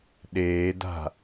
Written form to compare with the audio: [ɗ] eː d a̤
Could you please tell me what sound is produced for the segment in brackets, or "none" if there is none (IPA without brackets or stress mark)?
ɗ